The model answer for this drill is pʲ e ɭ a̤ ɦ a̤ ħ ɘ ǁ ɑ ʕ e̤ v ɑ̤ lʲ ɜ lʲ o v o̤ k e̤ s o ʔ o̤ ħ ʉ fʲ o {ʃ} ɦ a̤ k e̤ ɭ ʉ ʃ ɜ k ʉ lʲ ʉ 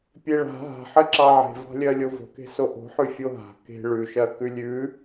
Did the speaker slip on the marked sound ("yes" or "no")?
yes